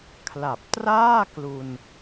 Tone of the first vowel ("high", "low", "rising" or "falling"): low